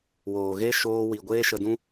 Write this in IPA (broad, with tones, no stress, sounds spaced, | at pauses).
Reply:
w oː˨ ɣ e˦ ʃ oː˧ w i˨ ɡʷ eː˦ ʃ ə˧ d ũ˦